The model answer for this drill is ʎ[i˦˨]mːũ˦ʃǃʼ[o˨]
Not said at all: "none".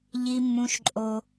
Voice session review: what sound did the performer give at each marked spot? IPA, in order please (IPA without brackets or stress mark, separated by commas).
i˦, o˦